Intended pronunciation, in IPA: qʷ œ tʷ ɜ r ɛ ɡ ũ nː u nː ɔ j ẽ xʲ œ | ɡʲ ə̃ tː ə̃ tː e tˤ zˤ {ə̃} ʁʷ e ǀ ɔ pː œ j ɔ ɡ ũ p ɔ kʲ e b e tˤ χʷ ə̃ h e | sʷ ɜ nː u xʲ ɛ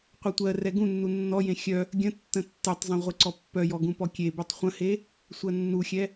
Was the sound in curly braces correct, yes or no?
yes